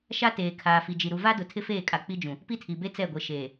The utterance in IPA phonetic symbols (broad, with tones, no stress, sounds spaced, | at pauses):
ʃ a˦ t eː˨ kʰ aː˨ f i˨ d͡ʒ i˨ ɾ u˨ v a˦ d ʊ˨ tʰ ɪ˦ f eː˦˨ kʼ a˨ k͡p i˦ d͡ʒ ũ˨ | p i˦ tʰ i˨ b e˦ t͡s ɛ˦˨ ɡʷ e˨ ʃ eː˨